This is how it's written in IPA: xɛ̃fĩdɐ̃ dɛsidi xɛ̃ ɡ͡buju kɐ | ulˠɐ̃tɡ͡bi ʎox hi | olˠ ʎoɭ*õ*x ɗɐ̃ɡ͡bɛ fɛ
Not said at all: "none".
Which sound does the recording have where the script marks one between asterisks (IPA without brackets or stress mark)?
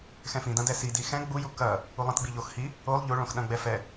õ